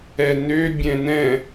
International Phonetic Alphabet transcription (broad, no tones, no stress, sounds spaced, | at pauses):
ɛ n ø bʲ ɛ̃ n ɛ̃